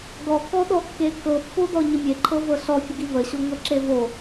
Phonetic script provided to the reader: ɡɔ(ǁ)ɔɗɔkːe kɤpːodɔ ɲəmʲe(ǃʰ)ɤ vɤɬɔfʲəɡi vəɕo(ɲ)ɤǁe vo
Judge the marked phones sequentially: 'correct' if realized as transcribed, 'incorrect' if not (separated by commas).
incorrect, correct, incorrect